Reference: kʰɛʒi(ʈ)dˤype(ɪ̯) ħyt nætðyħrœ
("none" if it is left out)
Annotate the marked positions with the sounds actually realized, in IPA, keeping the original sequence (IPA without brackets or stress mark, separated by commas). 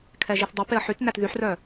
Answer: θ, ə̯